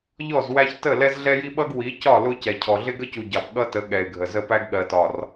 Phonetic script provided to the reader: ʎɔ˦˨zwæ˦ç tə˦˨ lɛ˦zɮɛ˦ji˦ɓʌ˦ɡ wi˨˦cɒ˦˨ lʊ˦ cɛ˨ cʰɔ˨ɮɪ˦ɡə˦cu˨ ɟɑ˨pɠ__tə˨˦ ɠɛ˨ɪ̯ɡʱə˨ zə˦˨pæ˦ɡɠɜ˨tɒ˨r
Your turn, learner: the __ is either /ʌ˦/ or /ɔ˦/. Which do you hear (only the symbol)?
ʌ˦